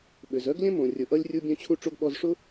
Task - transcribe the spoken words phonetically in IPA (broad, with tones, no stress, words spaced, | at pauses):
ɓʏ˩zœ˥ɡlʲœ̃˥ mõ˩rʲʊ˩ʔʌ˧lʲ rʲu˧ bʲœ̃˧t͡ɕʰu˧ʈ͡ʂo˧ɡ ɓɔ˧zʂʊ˥